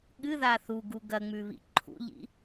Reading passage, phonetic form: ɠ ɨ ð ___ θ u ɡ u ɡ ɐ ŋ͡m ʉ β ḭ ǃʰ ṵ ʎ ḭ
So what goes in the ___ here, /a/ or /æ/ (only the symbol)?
a